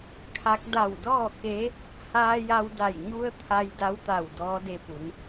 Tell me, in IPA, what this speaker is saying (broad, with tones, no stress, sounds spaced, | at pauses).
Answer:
kʰ a˧˥ k̚ d a˧˩ w d ɔː˥˨ k e˧˥ | h aː˧ j a˧ w d a˧˩ j ɲ u˧ ə̯ t̪ʰ a˧ j d a˧˥ w t̪ a˧˩ w d ɔː˧˥ d e˧ p u˩˧ n